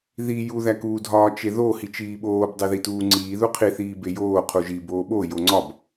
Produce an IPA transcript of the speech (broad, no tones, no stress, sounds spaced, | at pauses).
ð i j u ð æ k uː dʱ ɒː t͡ʃ e ð o h i t͡ʃ iː ɓ oː b dˤ e ð i t uː ŋ͡ǀ iː ð u qʰ i θ iː b e j oː qʰ u ʒ i b oː ɓ o j o ŋ͡ǀ ɒ b